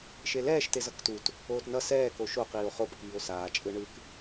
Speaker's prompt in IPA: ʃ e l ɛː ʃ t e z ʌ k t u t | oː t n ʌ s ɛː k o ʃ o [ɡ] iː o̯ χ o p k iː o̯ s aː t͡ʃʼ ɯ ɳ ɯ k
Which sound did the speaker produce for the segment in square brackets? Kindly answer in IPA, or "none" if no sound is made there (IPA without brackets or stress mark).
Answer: q